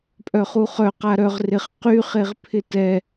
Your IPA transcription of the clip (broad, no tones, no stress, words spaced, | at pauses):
pʼœχuχœ qaɾœʁ rɪχ qy χeʁpʰɪtɛ